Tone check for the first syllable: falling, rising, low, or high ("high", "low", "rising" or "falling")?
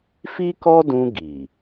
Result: high